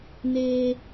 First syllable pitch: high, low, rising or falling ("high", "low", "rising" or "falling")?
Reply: low